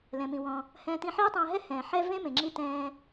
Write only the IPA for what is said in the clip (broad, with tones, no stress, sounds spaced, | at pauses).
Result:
l ɛ̃˩ m ĩ˩ w ɔ̃˩ | h ɛ̃ː˧ t ĩ˧ ħ iː˥ tˤ ɛ̃ː˧ ɦ ɛ˥ h ɛ̃ː˩ ħ ɛ˥ v ẽ˥ m ẽ˩ ŋ͡ǁ i˧ t ɛ̃ː˧